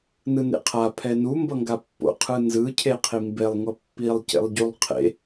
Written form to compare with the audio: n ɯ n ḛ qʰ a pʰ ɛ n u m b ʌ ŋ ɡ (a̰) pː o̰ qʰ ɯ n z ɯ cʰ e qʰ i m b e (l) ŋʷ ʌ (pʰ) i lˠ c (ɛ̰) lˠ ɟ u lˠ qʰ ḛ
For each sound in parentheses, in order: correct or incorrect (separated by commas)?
incorrect, incorrect, incorrect, incorrect